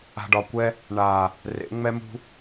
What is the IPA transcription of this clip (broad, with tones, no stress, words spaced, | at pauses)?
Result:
a̤˨ɖɒ˨kʷɛ˧ | ɳa˨ | rḛ˨˦ŋ͡mɛ˦mṳ˦